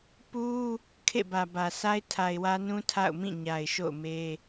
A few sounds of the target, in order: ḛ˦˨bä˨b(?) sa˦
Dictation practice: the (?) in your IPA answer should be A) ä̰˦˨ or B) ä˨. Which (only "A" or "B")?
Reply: B